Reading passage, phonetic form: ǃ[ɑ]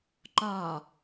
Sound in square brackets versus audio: incorrect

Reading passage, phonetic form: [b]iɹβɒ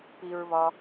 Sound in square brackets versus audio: incorrect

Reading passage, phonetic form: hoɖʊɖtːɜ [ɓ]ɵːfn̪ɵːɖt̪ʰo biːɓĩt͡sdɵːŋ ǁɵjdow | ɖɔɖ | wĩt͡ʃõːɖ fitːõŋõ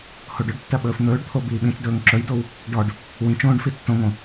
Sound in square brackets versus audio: correct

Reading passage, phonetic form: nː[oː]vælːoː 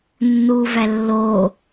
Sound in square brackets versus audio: incorrect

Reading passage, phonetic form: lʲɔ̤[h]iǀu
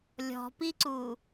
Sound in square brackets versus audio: incorrect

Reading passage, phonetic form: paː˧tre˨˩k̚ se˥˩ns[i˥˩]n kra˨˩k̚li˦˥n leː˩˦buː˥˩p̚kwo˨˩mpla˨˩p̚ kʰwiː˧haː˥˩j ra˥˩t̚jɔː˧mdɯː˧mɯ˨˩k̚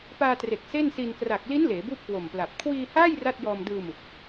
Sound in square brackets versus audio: incorrect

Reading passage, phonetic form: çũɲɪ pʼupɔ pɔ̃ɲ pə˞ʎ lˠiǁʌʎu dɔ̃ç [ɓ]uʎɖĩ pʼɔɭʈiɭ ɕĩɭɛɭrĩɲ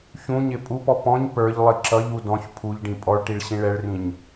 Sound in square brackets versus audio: incorrect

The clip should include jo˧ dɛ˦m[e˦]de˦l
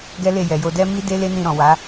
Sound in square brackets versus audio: incorrect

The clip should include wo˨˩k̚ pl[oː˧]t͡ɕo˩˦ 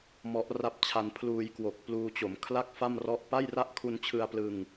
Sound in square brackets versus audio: incorrect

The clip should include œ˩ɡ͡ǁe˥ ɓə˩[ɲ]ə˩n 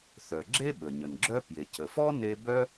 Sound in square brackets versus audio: correct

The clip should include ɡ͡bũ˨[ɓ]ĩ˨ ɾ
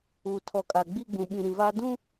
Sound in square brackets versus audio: correct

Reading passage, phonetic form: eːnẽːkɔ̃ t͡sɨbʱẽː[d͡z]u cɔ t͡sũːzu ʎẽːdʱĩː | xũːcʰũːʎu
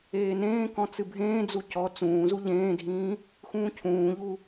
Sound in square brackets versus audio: correct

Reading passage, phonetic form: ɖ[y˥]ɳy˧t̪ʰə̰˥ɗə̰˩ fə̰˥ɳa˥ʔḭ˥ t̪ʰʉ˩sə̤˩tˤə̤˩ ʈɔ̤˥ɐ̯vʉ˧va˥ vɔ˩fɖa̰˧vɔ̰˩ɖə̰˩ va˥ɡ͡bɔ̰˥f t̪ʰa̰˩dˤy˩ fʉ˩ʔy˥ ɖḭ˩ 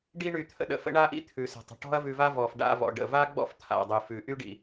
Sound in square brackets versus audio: incorrect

